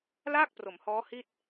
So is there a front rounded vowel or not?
no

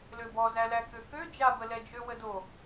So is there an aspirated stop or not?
no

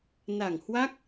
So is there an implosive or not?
no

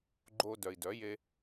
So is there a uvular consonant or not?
no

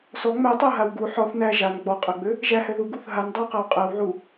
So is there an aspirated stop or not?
no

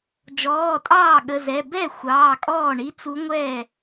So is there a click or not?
no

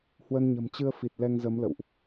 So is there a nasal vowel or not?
no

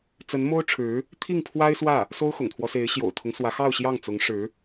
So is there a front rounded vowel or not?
no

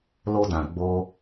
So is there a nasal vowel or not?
yes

